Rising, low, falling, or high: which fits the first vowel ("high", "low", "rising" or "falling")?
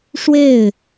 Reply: falling